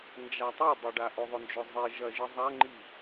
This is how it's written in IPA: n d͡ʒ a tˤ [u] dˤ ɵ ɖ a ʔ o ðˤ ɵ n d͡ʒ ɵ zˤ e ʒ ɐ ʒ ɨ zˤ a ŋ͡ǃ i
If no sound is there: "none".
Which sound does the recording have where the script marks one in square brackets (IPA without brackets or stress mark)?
u